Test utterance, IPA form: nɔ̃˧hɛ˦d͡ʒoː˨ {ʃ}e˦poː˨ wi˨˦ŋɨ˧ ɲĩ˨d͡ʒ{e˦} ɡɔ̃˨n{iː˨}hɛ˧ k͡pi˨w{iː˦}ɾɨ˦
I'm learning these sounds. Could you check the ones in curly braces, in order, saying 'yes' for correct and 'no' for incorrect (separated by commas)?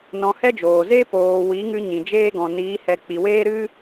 no, no, no, no